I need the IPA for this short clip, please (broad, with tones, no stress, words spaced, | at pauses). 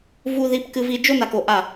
vu˦ ði˦pkɨ˦vi˦ d͡ʒo˦na˨k o˨ʔa˦˨